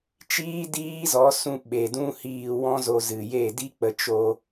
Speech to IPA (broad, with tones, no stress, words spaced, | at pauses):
t͡ʃiː˦diː˦zɔ˨˦sũ˧ ɓe˨dũ˦hiː˧ wɔ̃˦zo˧ zɨ˨je˦˨di˦ k͡pə˧ t͡ʃo˧